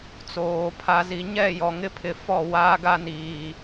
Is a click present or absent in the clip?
absent